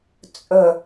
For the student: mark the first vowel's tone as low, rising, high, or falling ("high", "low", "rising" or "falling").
low